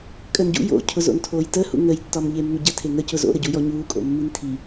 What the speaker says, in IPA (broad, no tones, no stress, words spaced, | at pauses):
kʼəːnɟṵ jo̰cʰʊ zo̰ntʰoːjtə hṵŋəj tːɒmʎemːʏɟə tʰeŋə cʊzo̰ɾəɟu jɔɲuːkʼo̰mːin tʰi